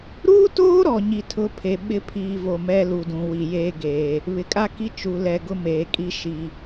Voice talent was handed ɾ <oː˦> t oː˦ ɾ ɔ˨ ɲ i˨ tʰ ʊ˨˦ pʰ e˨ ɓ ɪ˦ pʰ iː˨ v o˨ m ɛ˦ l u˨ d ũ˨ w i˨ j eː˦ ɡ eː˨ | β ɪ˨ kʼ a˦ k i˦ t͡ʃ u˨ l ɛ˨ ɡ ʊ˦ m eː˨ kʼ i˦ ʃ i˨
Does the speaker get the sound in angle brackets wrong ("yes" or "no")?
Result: yes